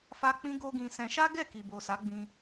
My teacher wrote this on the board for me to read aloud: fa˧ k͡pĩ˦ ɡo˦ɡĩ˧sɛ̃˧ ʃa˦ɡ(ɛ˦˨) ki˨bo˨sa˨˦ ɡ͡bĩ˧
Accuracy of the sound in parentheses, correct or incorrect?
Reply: correct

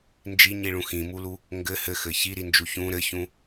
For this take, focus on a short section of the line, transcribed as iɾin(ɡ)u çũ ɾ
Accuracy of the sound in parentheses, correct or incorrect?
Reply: incorrect: d͡ʒ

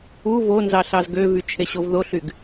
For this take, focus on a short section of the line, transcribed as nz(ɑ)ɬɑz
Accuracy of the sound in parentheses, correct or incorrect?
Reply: correct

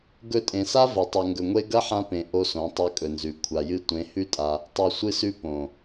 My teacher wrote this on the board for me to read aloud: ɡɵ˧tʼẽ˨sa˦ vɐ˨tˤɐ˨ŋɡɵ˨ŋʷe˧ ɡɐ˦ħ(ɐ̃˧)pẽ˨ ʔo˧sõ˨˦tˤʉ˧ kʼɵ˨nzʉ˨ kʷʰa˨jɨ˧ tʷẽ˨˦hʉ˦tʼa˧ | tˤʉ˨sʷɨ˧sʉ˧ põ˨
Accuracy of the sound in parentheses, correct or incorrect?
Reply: incorrect: ã˧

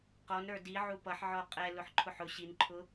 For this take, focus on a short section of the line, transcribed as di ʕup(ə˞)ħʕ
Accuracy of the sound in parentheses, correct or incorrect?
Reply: incorrect: ʌ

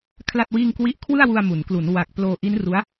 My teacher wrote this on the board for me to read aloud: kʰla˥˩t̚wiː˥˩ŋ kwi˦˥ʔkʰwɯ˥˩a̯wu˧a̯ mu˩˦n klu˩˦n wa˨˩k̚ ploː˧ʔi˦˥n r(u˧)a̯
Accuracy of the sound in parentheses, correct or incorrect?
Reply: incorrect: u˦˥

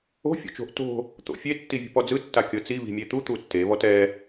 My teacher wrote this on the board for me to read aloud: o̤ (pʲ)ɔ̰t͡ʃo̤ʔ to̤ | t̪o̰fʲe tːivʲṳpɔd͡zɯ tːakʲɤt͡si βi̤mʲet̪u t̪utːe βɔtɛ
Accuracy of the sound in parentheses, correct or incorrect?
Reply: incorrect: fʲ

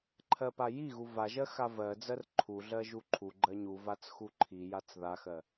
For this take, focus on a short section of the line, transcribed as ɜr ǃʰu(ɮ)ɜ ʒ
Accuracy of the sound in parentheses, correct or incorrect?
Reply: correct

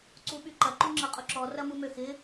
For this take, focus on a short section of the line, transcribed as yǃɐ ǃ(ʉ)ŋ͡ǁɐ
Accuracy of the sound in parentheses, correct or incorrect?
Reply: incorrect: u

